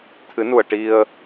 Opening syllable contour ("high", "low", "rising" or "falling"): rising